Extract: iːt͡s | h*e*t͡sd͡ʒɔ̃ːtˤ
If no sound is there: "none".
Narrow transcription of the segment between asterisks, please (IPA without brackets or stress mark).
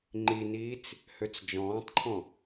ø